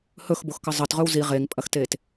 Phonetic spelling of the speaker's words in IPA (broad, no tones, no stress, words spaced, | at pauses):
hɵxboxkə zˤətʁɵw zi ʁeŋpʼɐxtet